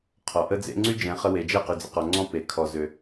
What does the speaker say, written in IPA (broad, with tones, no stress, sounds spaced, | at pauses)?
qʰ ɔ˨ ʔ ə˦ d͡z ḛ˦ ŋ͡ǀ y˦ d͡ʒ ɛ̃˨˦ χ ə˧ w e˨ d͡ʒ ɛ˦˨ q y˨ d͡z ə̰˨ q ɔ˨ ŋ͡ǀ ɔ̃˦ p e˨ kʰ ɔ˨ z ø˨